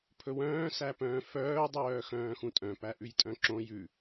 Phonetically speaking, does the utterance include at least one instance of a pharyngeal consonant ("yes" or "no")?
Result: no